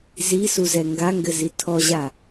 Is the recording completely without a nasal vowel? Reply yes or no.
yes